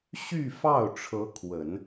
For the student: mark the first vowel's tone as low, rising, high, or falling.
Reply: falling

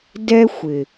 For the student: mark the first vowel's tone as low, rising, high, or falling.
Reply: high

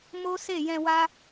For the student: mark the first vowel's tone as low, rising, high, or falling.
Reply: high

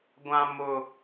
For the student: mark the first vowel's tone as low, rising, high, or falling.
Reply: high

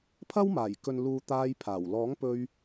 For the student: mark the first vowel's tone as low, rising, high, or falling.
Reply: high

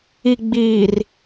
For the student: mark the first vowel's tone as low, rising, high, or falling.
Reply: low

